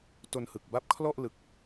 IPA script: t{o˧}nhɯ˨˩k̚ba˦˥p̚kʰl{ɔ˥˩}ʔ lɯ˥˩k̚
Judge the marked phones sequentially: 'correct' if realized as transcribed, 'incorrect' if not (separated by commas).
correct, correct